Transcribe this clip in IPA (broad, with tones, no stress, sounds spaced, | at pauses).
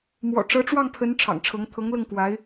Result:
m w ɔ̰˨˩ ʈ͡ʂ ɤ˧˥ ʈ͡ʂ w ɑ˥˩ ŋ pʰ ə˧˥ n ʈ͡ʂʰ ɑ̰˨˩ ŋ ʈ͡ʂʰ ɤ˧˥ ŋ t̪ʰ ɤ˧˥ ŋ l ɤ˥˩ ŋ k w a˧˥ ɪ̯